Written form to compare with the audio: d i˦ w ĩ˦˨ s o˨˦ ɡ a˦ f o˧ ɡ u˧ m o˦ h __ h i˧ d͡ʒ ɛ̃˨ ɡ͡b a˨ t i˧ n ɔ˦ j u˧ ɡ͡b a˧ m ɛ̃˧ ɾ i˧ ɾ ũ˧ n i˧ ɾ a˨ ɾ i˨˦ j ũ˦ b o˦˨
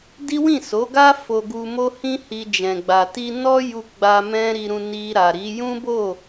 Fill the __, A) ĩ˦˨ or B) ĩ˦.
B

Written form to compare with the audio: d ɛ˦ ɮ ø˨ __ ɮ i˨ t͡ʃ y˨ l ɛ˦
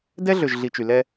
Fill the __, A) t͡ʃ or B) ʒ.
B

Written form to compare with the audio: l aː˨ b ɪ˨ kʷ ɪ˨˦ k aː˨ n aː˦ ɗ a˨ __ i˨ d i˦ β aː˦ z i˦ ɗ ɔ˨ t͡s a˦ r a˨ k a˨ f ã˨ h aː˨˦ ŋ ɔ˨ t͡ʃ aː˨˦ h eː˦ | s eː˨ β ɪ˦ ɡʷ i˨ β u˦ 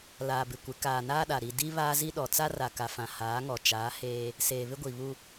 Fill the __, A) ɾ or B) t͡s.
A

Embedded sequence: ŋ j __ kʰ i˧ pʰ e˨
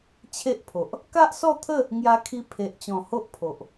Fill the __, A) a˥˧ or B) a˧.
B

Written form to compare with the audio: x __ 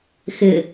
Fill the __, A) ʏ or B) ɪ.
B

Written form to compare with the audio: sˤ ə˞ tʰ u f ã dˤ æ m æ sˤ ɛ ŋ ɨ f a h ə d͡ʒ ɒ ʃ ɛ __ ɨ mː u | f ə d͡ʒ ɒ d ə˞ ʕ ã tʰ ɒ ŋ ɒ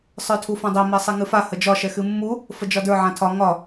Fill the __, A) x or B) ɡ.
A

